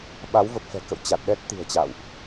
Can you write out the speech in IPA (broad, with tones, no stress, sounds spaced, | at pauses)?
ɓ a˨˦ w v ə˨˩ p̚ f ɛ̤˨˩ k ə̰˧˨ w t͡ɕ a˨˩ t̚ ɗ ɛ˦˥ t̚ t̪ i̤˨˩ ə̯ t͡ɕ a̰˧˨ w ʔ